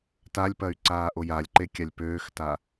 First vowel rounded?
no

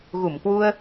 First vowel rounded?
yes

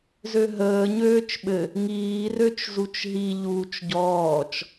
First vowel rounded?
yes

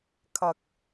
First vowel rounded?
no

